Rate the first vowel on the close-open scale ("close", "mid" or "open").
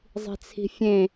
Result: close